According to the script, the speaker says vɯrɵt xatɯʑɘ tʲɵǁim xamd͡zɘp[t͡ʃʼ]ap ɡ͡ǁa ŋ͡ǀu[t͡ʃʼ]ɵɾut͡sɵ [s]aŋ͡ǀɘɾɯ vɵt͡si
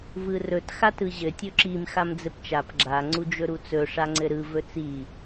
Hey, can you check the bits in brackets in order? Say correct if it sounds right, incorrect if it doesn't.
incorrect: t͡ʃ, incorrect: d͡ʒ, incorrect: ʂ

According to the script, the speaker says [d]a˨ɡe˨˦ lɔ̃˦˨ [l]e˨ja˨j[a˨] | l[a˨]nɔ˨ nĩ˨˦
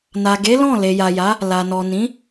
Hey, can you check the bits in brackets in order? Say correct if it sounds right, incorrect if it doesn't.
incorrect: n, correct, incorrect: a˨˦, correct

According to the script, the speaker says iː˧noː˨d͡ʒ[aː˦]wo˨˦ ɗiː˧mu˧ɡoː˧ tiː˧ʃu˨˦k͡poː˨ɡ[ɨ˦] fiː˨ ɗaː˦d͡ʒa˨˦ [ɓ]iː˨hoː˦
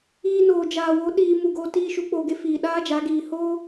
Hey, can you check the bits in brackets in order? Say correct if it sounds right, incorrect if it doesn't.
incorrect: aː˨, incorrect: e˦, incorrect: ɡ

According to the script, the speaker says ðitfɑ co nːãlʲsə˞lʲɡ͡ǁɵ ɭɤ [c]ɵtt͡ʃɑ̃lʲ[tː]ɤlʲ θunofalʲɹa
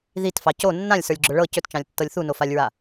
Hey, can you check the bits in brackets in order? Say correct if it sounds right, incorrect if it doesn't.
correct, correct

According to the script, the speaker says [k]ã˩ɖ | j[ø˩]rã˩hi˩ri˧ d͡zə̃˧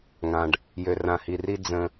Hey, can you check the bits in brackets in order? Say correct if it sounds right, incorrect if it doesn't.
incorrect: ŋ, correct

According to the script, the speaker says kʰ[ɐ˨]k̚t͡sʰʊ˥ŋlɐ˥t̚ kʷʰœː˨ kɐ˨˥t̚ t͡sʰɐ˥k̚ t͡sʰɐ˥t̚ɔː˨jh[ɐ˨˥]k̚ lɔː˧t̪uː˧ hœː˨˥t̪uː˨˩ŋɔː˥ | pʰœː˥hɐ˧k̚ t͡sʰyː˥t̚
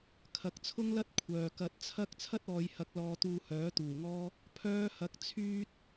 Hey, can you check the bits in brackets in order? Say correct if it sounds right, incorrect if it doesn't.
correct, correct

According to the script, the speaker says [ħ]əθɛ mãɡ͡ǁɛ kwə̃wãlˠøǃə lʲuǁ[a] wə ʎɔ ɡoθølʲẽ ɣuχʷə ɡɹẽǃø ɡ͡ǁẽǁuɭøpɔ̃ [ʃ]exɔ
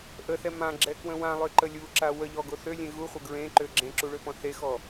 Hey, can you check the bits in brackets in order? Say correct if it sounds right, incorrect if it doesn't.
incorrect: ʔ, correct, incorrect: θ

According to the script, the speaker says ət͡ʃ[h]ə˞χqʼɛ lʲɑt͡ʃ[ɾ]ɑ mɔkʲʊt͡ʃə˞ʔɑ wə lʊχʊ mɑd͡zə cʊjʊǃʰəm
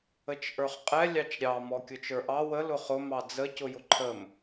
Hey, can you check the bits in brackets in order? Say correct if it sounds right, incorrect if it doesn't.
incorrect: ʔ, incorrect: ɾʲ

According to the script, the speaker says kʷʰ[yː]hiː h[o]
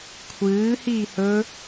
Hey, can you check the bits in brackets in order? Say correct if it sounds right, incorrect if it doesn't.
incorrect: ɨː, incorrect: ɵ

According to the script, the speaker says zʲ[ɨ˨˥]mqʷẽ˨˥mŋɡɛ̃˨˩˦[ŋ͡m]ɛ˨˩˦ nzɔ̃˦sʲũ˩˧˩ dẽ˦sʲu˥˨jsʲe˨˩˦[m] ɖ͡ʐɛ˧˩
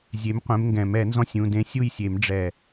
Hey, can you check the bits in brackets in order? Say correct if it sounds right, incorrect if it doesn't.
incorrect: e˨˥, incorrect: m, correct

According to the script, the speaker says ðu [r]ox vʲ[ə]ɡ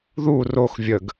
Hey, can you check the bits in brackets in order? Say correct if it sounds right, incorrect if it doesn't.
correct, correct

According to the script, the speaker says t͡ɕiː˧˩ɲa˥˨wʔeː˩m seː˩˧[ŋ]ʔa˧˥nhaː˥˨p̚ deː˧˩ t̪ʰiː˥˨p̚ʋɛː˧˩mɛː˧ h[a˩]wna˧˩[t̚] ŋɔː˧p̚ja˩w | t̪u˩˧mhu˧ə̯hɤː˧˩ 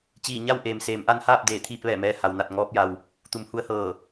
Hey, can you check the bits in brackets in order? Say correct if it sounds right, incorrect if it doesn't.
incorrect: m, correct, correct

